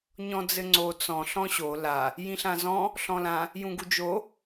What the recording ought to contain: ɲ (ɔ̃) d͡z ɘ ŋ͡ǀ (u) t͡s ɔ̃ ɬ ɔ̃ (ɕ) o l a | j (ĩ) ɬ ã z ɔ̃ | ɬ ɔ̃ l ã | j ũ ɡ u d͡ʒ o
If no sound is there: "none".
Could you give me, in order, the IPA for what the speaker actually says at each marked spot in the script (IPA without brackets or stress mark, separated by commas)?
ɔ̃, o, ɕ, ĩ